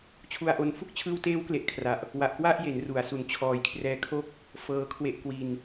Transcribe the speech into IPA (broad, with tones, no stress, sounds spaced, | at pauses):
t͡ɕʰ u˧ a̯ ʔ o˧ n f u˦˥ k̚ t͡ɕʰ ɯː˧ w t eː˦˥ w k l e˨˩ ʔ kʰ r a˨˩ ʔ | w a˨˩ ʔ k w a˥˩ ʔ j e˩˦ n r u˩˦ a̯ s u˩˦ n t͡ɕʰ ɔː˨˩ j kʰ r ɛː˧ kʰ o˥˩ k̚ | f ɤː˧ kʰ w e˦˥ ʔ k w i˧ n